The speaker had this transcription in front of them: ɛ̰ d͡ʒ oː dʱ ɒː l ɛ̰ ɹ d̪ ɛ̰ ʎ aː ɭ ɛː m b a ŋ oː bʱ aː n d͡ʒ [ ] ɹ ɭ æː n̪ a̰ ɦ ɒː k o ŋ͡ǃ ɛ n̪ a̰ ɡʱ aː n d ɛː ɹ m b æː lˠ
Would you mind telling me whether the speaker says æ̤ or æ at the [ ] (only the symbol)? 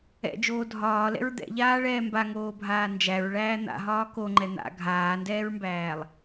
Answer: æ